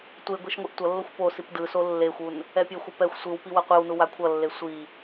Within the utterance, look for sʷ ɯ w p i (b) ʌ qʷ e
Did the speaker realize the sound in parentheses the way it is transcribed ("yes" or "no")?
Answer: no